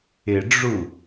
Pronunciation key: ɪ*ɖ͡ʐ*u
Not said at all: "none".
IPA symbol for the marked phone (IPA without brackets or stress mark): ɖ͡ʐ